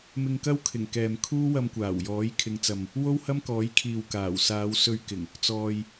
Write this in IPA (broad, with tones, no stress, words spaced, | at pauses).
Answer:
mɪ˧ŋkɐ˥wkʰɪ˨˩ŋ kɛː˨mkʰuː˥ wɐ˧mkʷaː˨˩w jɔː˨˥jkʰɪ˨˧ŋt͡sɐ˨m | wo˥whɐ˥mkɔː˨˥jkʰiː˨w kaː˨˩w saː˨˧wsɵ˧ɥkɪ˨˩ŋ | t͡sɔː˨j